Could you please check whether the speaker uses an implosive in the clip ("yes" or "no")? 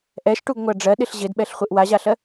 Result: yes